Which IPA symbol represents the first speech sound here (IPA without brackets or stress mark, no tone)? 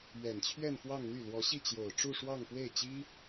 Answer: ɥ